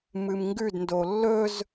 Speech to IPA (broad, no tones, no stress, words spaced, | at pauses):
mɨmŋɡʉdndo lːɵz